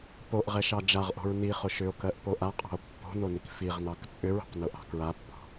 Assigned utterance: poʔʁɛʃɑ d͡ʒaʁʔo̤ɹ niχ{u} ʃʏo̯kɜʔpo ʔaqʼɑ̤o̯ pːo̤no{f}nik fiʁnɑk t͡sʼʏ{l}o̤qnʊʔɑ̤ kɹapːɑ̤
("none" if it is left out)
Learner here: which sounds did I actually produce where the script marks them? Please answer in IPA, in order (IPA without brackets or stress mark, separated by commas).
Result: ʊ, none, ɹ